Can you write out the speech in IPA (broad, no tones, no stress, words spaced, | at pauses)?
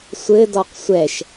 sʷɘdɔq sʷɛʃ